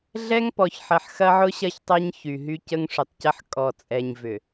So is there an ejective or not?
yes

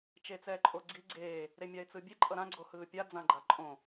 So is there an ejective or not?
yes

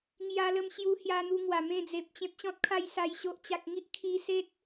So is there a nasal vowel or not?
yes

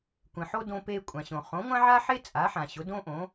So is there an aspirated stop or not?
no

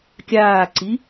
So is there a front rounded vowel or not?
no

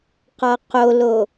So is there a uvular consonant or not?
yes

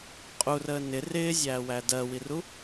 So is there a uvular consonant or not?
yes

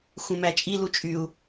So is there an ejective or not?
yes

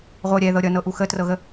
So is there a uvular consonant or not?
yes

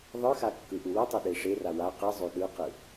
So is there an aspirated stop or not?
no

